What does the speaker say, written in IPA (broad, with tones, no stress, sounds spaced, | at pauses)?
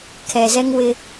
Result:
kʰ ɛ˨ z ɛ˦ ŋ w ɪ˦